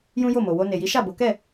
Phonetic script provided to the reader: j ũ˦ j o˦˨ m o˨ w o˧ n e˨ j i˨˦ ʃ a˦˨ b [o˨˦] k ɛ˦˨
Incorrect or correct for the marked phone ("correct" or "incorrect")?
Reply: correct